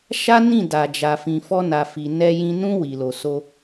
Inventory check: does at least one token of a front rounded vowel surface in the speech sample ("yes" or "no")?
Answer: no